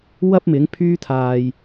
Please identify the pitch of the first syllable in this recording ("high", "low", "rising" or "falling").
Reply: high